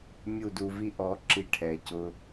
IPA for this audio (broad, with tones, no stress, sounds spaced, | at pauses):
mʲ u˦˨ d u˧ v i˦ ʔ ɔ˨˦ ǁ i˧ ʈʰ ɛ˨ c ʊ˧